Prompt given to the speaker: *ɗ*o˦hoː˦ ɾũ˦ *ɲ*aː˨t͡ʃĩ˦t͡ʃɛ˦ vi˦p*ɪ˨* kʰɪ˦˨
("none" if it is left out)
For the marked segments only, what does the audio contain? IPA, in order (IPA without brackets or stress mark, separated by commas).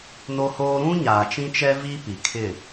n, ɲ, i˨